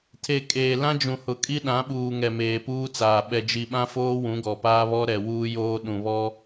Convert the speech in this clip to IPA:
tʰe˨ kʼeː˨ lã˦d͡ʒũ˨hʊ˨kʼi˦ ɗã˨˦ɓuː˨ ŋɛ˨meː˨puː˦t͡saː˨ ɓɛ˨d͡ʒi˨ɓã˦foː˦ wũ˨˦ɡɔ˨paː˦ βɔ˦ɾɛ˨ wuː˦joː˦ ɗũ˨βɔ˦

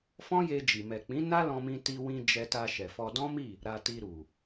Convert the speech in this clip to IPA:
fɔ̃˦je˧d͡ʒi˨ mɛ˨k͡pĩ˨˦ na˦lɔ̃˧mĩ˧ ti˧wĩ˧ d͡ʒɛ˧ta˧ʃɛ˨fɔ˧ dɔ̃˦mi˦˨ | ɾa˧ti˧ ɾu˨

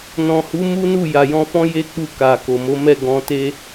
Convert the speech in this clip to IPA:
nɔ̃˨hu˨˦ mu˦nu˦˨ ja˨jɔ̃˧fɔ̃˦ je˦ k͡pu˧ ka˨ko˨mo˨˦mɛ˦˨ ɡɔ̃˧te˦

